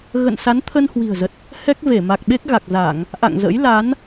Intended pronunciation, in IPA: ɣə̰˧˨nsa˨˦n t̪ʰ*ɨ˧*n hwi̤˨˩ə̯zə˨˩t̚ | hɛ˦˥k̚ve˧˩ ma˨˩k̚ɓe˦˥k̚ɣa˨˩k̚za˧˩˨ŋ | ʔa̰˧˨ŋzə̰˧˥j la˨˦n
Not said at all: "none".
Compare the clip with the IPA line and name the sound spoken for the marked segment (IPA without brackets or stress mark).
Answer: ə˧